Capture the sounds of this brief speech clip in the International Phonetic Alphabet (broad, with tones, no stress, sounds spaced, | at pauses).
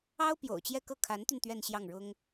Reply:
ɑ˥ ʊ̯ p j o̰˨˩ ʊ̯ t͡ɕ j ɛ˥˧ k ɤ˥˩ kʰ a˧˥ n t̪ y˧ n t̪ ɥ ɛ˥˧ n ɕ j ɑ˥˩ ŋ ɻ ʊ˥ ŋ